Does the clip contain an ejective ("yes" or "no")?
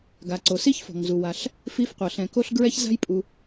yes